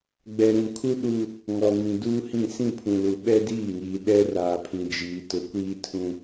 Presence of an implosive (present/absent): present